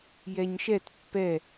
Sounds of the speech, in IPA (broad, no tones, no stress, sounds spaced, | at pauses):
j ɛ ɲ ʃ ɛ t pː ɛ